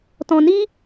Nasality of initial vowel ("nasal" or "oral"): nasal